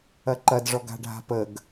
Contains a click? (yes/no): yes